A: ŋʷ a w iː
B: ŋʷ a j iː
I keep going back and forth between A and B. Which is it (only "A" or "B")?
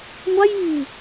B